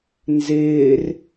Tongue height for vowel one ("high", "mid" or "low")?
high